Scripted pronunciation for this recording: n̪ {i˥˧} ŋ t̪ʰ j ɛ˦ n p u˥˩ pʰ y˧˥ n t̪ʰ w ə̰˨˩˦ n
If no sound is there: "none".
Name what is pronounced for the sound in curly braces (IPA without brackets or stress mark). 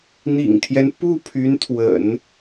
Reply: ḭ˨˩